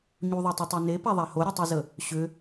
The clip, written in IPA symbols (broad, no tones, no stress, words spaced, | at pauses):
ɲuðˤetˤutˤe nepaðˤa hoɾʲætˤezə | ɕʏ